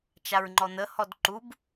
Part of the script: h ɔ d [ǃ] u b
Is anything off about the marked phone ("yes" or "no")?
no